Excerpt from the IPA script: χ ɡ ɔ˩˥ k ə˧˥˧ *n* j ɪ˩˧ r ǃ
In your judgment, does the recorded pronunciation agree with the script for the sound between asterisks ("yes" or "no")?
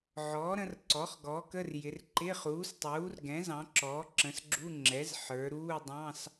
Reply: no